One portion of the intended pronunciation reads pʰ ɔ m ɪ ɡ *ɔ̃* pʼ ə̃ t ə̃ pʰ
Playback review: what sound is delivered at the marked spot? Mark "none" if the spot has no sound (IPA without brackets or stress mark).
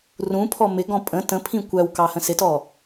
ɔ̃